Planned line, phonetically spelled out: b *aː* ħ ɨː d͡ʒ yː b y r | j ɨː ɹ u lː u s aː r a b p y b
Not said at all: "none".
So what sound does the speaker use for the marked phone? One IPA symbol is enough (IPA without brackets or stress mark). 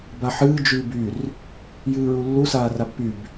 a